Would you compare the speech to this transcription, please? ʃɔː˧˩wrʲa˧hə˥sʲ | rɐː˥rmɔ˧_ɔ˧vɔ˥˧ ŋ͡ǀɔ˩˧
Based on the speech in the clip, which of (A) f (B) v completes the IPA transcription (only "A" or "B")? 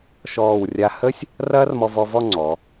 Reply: B